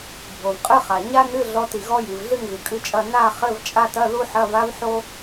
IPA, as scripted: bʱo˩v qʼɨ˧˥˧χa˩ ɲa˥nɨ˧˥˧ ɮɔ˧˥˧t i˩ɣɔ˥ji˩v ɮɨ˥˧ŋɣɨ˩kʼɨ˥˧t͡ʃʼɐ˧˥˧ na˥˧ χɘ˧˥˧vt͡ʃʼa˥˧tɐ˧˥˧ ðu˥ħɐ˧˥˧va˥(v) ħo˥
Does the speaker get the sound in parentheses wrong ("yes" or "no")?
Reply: no